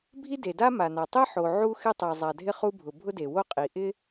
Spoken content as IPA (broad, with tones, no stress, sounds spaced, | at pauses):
bʱ i˥ d e˩ d a˥ m a˩ n a˩ tˤ e˥ ħ o˩ ʕ u˥ x ɪ˥ tˤ ɛ˩ zˤ a˩ dʱ ɪ˥ χ u˥ bʱ ʊ˩ bʱ ʊ˥ d e˩ w o˥ qʼ i˩ ʔ ɪ˥